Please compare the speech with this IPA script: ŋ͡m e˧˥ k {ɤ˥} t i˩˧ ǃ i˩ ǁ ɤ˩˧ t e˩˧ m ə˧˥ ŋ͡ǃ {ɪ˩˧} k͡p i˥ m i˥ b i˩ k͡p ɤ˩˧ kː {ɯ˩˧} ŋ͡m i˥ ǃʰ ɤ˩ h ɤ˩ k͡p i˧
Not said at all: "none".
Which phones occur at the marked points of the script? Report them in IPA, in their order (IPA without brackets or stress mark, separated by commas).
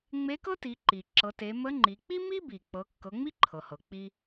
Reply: ɤ˥, i˩˧, ɤ˩˧